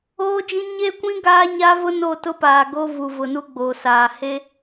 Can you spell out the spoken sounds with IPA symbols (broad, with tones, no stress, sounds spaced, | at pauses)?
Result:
oː˦ d͡ʒ ĩ˦ ɲ e˦ kʷ ĩ˦ ɡ aː˦ ɲ a˦ v ʊ˦ n o˦˨ t ʊ˦ p aː˨ ɡ o˦ v u˨ v ʊ˨ n u˦ ɡ͡b o˨ s aː˨ h e˦